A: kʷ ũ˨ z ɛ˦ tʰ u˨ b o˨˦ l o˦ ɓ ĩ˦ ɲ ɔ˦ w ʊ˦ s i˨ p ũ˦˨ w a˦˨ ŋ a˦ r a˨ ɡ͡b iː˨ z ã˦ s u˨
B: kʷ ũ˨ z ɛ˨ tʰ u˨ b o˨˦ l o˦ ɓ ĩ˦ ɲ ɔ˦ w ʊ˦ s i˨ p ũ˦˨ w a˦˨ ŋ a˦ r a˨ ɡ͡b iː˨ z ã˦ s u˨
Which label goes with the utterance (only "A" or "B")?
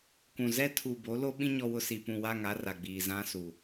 A